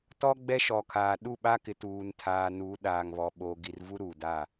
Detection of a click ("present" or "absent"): absent